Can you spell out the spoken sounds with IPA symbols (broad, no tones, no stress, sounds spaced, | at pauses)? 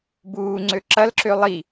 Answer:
b uː ŋ͡ǀ ø ǁ ɐ l ǁ ø lˠ i